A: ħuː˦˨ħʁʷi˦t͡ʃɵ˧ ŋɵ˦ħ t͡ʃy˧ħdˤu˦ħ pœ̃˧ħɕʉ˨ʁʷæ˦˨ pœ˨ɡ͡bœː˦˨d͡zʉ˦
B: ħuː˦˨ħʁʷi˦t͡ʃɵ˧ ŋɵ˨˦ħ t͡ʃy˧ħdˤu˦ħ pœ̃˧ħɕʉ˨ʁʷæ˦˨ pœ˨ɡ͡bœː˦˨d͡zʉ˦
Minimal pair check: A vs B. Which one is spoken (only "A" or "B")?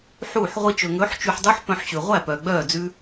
B